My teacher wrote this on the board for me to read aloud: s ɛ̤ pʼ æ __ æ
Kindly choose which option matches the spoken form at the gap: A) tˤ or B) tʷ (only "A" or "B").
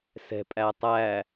A